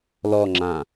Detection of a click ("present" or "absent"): present